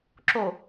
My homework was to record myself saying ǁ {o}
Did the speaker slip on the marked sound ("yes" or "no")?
no